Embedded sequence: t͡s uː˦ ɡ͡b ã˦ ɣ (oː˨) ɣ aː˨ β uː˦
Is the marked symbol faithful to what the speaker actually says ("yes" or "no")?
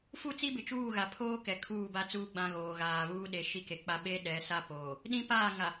yes